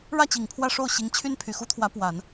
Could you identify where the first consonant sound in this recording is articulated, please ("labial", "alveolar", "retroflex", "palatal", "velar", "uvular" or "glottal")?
retroflex